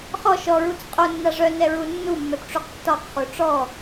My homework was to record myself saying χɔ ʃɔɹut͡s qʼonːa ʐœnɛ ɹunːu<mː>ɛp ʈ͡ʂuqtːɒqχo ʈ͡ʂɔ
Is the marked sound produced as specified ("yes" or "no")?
yes